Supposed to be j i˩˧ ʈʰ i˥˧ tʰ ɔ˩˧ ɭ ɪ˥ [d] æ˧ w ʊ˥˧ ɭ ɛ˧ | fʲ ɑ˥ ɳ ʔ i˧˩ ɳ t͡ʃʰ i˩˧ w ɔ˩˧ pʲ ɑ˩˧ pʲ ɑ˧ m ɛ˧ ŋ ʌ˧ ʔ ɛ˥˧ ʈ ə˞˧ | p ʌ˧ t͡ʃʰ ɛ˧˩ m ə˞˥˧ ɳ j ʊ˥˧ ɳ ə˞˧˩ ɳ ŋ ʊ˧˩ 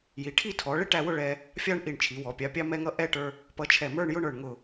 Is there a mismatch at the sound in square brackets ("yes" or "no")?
yes